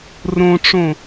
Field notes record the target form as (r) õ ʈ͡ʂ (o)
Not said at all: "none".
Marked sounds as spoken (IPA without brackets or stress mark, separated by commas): r, õ